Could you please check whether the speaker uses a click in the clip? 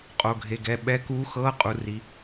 no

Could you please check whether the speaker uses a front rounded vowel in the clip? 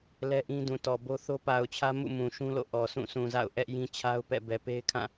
no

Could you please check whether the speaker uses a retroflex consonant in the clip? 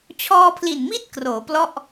no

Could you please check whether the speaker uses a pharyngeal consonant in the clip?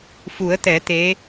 no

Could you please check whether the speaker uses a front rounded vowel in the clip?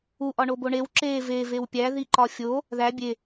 no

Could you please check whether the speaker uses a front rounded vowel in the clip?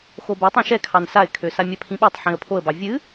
yes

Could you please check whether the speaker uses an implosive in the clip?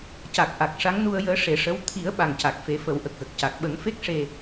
yes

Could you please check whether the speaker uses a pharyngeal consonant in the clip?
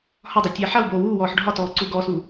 yes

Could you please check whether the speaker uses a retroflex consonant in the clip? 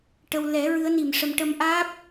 yes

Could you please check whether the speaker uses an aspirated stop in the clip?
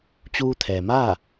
yes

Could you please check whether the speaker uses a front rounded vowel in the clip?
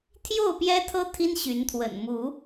yes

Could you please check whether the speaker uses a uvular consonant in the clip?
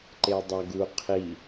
yes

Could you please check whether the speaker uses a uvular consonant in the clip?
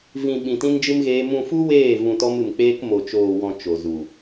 no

